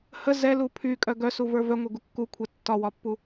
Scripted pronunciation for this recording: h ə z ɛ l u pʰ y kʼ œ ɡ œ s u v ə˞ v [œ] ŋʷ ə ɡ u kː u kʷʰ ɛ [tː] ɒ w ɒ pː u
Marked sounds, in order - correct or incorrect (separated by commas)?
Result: correct, correct